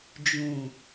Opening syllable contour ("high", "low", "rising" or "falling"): low